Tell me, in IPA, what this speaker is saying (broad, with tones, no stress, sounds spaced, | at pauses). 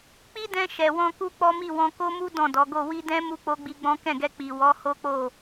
k͡p i˦ d ɛ̃˧ ʃ ɛ˨ w ɔ̃˧ k u˦ k͡p ɔ˦ m i˦˨ w ɔ̃˧ k o˦ m u˦ d ɔ̃˦˨ d ɔ˨˦ ɡ o˦˨ w i˧ d ɛ̃˦ m u˦ k͡p o˦ ɡ͡b i˧ ɡ͡b ɔ̃˦ k ɛ̃˦˨ ɡ ɛ˧ k͡p i˨ w ɔ˨˦ h o˦ k͡p o˦˨